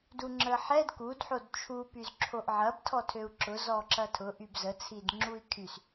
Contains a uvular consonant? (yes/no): no